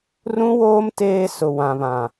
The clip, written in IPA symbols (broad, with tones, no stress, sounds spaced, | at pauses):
r ũ˦ w oː˦ m t eː˦ s ʊ˨ w ã˨ β ã˨